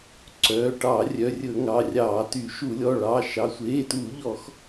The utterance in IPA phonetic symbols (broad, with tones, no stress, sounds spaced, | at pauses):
ǀ œː˩˧˩ ʈ ɑ˧˩˧ rʲ œ˩˧˩ rʲ ɵ˧˩˧ ŋ ɑ˩˧˩ rʲ ɑː˧˩˧ t y˧˩˧ ʃ u˧˩˧ lʲ ɔ˩˧˩ ɭ ɑː˩˧˩ ʃ ɑ˩˧˩ sʷ eː˩˧˩ t u˧˩˧ ʎ ɔ˧˩˧ x